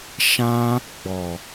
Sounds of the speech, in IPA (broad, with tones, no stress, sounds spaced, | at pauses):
ʃ ã˦ | ɡ͡b ɔ˨